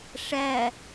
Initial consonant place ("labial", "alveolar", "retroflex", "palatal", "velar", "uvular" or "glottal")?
retroflex